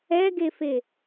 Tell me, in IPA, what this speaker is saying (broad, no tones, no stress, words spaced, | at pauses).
ɛɡefe